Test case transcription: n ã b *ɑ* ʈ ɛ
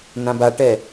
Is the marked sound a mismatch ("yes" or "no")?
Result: yes